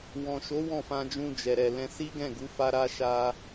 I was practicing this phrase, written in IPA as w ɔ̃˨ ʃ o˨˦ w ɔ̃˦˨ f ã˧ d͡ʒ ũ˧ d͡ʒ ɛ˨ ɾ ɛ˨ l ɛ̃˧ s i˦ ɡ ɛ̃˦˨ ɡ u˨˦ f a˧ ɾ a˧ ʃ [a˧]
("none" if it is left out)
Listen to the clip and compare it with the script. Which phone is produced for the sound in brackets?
a˧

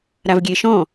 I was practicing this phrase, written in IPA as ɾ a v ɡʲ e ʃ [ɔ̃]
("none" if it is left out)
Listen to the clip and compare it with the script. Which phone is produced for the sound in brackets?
ɔ̃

